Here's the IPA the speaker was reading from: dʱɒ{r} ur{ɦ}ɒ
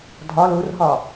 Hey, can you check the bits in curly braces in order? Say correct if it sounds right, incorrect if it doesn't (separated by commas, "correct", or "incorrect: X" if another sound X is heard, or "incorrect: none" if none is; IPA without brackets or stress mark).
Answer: incorrect: l, correct